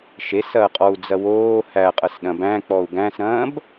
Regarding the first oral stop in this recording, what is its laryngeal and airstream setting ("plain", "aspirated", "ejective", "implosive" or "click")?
ejective